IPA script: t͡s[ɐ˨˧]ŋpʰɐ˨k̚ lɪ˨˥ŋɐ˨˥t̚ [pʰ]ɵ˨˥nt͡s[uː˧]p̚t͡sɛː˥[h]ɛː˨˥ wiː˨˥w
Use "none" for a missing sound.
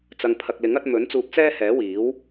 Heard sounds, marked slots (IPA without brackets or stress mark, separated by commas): ɐ˨, m, uː˧, h